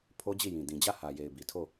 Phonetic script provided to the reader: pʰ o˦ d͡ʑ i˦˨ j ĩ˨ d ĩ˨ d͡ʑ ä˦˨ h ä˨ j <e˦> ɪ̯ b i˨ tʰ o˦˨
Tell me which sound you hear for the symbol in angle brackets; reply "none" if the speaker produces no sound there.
e˨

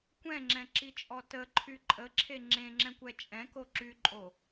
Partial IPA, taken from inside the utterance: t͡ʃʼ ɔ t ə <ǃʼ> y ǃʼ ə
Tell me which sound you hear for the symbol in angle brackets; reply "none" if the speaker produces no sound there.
ǃʰ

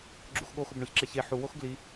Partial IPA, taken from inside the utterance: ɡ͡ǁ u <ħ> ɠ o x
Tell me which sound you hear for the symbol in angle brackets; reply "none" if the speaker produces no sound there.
x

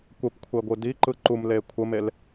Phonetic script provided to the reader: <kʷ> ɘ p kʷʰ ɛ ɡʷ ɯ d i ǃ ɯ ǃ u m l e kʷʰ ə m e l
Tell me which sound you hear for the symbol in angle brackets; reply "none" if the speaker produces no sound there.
kʷ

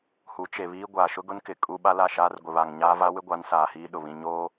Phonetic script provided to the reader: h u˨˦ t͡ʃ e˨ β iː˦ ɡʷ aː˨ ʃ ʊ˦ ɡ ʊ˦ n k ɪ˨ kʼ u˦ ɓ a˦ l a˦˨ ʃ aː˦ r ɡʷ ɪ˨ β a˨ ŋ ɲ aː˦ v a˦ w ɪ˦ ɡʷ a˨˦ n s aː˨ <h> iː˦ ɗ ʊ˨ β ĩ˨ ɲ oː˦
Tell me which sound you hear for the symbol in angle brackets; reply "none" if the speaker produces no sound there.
h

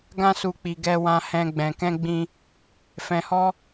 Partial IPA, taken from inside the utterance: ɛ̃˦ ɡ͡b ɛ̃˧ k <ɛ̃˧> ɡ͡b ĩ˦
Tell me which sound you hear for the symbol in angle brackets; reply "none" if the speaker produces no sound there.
ɛ̃˦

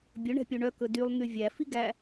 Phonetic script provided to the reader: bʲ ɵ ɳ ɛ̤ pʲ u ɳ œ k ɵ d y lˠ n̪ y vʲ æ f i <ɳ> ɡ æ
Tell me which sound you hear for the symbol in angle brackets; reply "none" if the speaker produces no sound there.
none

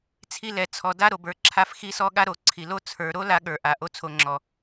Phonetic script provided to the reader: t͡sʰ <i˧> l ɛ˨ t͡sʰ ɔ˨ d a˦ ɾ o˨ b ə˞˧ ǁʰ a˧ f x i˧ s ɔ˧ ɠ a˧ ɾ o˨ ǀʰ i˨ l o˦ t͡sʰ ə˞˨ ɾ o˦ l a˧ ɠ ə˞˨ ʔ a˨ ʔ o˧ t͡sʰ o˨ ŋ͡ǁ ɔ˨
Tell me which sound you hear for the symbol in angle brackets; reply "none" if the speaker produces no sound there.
i˧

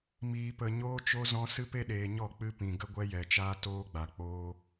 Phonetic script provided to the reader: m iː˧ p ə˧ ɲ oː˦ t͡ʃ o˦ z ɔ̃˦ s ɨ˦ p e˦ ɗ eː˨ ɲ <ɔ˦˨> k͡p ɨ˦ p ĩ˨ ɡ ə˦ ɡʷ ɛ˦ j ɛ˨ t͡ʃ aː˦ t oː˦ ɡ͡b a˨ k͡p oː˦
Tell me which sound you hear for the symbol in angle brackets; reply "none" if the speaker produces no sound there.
ɔ˦˨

